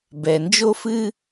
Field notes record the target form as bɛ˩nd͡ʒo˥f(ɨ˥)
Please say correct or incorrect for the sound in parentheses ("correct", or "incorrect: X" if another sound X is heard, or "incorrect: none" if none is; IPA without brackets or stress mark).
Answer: correct